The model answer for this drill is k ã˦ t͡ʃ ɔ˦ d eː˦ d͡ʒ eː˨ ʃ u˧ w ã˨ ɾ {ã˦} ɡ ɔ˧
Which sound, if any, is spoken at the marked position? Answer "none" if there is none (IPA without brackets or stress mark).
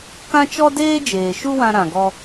ã˨